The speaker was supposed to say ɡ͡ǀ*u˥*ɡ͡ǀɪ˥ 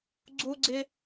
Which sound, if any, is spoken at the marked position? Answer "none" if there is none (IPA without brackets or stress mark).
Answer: u˥